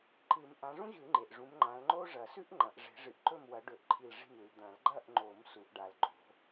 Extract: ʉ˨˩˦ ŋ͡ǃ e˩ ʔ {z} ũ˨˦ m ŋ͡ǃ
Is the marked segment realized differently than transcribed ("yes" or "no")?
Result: yes